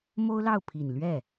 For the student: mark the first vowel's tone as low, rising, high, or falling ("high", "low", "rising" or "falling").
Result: high